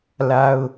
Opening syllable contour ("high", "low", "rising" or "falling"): high